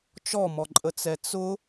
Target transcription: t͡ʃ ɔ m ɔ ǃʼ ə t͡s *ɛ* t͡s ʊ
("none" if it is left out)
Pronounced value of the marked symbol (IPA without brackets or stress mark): ɛ